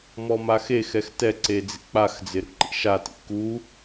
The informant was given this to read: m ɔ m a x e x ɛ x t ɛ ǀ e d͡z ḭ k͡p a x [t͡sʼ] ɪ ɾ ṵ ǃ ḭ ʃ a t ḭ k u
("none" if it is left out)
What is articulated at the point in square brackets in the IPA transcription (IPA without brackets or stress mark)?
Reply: d͡z